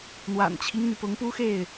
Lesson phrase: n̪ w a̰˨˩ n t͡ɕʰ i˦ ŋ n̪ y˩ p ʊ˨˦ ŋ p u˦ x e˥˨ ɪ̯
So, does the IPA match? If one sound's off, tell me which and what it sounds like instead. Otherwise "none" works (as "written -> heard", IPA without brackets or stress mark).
none